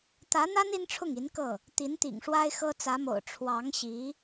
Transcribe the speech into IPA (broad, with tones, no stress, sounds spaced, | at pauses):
t̪ ä˧˥ n̪ a˥ n i˥ n ʈ͡ʂʰ ʊ˥˩ ŋ i˧˥ n k ɤ˥˩ | t̪ i˧˥ n t̪ ḭ˨˩ ŋ ʂ w a˥ ɪ̯ x ɤ˥ t͡s ä˧˥ m o̰˨˩ ʊ̯ ʈ͡ʂʰ w ɑ˧˥ ŋ ɕ i˧˥